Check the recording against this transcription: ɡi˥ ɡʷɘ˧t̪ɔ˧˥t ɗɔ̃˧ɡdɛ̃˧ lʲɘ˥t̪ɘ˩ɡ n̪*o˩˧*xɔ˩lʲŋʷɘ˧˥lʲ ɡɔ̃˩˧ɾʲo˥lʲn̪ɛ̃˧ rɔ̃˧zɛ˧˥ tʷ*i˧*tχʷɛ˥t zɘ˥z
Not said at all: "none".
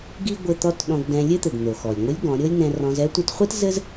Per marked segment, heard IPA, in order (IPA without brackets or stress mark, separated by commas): o˩, i˧